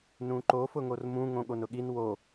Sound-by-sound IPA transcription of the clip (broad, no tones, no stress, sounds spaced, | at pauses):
n ũ ǃ o f ʊ ŋ o r m ũ ŋ õ ɠ o n ʊ ɠ i n w o